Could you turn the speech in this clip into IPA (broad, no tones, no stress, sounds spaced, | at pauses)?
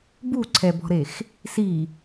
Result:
b u ǀʰ ɛ b ɔ̤ ɾ e x | s i